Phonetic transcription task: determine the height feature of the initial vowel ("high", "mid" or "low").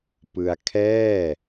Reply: high